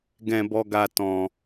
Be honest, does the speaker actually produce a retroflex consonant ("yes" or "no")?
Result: no